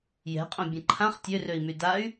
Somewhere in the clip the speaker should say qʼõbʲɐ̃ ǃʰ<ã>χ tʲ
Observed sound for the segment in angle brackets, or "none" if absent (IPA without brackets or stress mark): ã